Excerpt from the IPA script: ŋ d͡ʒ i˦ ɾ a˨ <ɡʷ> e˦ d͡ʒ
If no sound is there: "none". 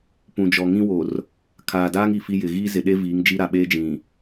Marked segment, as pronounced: ɓ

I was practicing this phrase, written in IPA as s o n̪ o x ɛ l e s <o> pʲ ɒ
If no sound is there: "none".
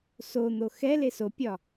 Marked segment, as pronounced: o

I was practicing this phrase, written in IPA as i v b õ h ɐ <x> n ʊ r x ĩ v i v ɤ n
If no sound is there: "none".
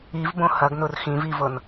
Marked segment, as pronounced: ɡ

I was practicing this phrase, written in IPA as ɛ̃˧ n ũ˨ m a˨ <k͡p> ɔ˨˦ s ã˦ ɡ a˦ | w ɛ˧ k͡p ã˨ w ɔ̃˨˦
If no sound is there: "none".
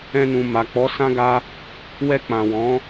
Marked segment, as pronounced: k͡p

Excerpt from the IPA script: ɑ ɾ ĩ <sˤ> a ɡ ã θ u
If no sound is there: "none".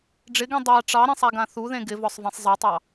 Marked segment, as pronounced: sˤ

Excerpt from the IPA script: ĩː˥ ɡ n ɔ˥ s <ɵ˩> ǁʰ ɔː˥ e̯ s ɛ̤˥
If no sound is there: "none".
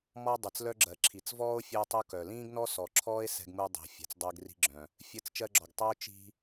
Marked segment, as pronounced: ɔ˩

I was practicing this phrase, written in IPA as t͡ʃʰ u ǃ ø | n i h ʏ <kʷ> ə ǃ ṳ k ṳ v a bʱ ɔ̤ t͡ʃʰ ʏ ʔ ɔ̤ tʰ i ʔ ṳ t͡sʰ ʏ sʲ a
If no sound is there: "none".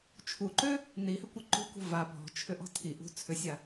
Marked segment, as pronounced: kʷ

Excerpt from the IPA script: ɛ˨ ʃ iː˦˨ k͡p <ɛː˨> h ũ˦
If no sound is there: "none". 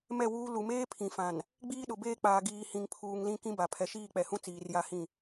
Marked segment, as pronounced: ɛ˨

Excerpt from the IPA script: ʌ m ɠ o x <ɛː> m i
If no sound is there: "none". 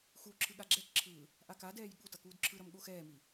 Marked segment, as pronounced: ɛː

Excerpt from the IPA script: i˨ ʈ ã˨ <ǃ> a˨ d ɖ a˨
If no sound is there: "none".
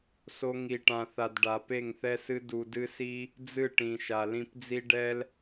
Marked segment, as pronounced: θ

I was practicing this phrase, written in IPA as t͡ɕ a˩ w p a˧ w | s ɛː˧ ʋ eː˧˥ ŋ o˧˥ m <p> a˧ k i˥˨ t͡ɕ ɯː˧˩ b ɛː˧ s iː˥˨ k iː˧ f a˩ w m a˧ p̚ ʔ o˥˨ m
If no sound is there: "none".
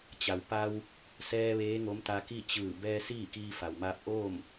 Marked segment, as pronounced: t̪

